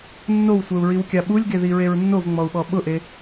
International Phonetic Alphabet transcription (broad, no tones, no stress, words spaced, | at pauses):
nːowsʷɛu̯ɹiwkʲa ɓulʲɡeðiɹeɹ nːovŋ͡mɔu̯ɓɔ ɓʊʔe